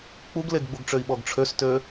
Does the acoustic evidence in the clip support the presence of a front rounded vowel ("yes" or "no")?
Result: yes